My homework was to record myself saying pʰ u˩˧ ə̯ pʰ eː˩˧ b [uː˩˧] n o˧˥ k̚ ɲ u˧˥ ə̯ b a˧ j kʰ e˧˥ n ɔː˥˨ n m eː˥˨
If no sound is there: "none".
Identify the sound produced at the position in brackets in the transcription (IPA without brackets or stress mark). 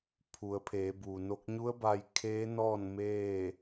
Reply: uː˩